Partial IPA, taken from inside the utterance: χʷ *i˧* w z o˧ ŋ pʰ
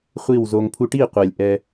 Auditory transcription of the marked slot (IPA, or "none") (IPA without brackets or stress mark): i˦˨